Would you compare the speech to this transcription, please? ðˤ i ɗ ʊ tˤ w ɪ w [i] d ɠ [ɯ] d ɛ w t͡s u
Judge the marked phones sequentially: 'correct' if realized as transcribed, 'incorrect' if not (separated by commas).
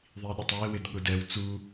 incorrect, incorrect